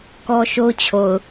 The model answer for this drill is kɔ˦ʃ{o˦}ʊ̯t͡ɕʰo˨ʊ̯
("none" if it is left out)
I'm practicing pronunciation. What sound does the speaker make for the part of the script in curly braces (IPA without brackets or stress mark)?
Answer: o˦